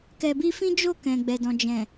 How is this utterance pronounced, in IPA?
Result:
kɛ˨bi˧fĩ˦d͡ʒo˦˨ kɛ̃˨ɡ͡bɛ˨ dɔ̃˨d͡ʒɛ̃˨

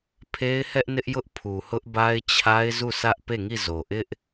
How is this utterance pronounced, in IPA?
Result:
pʰe˦ɪ̯hɛ˦ʔnɪ˦ʔ jʊ˦ʔpʰu˨hʊ˦ʔ ba˦ɪ̯t͡ɕʰa˦ɪ̯ zu˦˨sʰä˦ʔ pe˦˨ŋi˦˨zo˨ ʔɪ˦ʔ

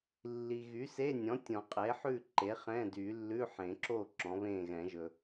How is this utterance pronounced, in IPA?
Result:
lːi˨ ɣy˩˥se˧˥˧nʲɔ̃˩˥ tʲɔ̃˨˩˦qʼe˩˥ħʉ˥˨ ǃe˩˥χɛ̃˧˥˧dy˨˩˦ lːʉ˧˥˧ħẽ˨˩˦ǁo˥˨ ǁɔ̃˩˥βẽ˥˨ɣɛ̃˨˩˦ʒɵ˨

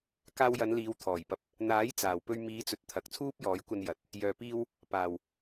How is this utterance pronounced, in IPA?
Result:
kaː˧wjɐ˨˧nliː˨˧w t̪ʰɔː˨˩jpɐ˨˥p̚ | n̪aː˨˥j t͡saː˨˩wpɵ˧ɥ miː˨˧t͡sɵ˨t̚ t̪ʰɐ˨k̚t͡sʰuː˥p̚jɔː˨˥jkʷɐ˧n jɐ˨t̚ | jœː˨piː˧w | paː˨˩w

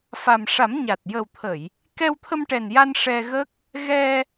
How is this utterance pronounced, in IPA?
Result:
fa˨˩mʂa˨˩˦m ɲa˨˩t̚ jə˨˩wt̪ʰə˨˩˨j | kɛ˧wt̪ʰə˧mʈɛ˨˩nja˧n ʂɛ˧ɣə˦˥k̚ | ɣɛ˧

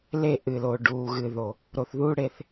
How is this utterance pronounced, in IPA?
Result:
le˦˨ ʔɨ˨lo˨ ɖuː˨ ɣɨ˨ðo˨ | ɾo˨θðuː˦ ɽe˧θ

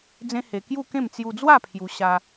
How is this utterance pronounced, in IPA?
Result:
d͡zẽ˦he˧ kju˥˧kẽ˥˧m t͡sju˧d͡zwa˥˧ pʰju˧ ɕa˧

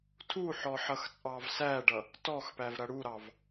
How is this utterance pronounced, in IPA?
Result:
tʰuħɔ ħʌxt͡sʼɑvsæɖʌ | tɔxpæv ɾʌɽuɾɑv

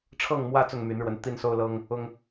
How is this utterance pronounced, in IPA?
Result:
ʈ͡ʂʰɤ˥˨ŋ mwä˦ t͡sʊ˥˨ŋmy˨˦nɻwə˨˦n t̪i˦nso˦ʊ̯lɤ˦ŋ | ʊ˦ŋ

